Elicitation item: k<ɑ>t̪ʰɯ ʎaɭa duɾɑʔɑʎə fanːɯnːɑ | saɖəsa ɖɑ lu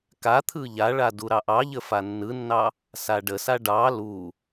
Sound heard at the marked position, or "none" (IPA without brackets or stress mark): a